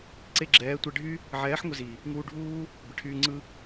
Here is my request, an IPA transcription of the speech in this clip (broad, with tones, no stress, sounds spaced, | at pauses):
ǀ e˧ ɡ͡ǁ ɛː˨˦ tʷ ɛ˧ ɖʱ y˦ | ʕ ɛː˨˦ ħ ŋʷ ɪ˧ z i˨ | ŋ uː˧ ɖʱ uː˦ | b ɪ˨ ʈʰ yː˧ ŋ͡ǀ ɯ˧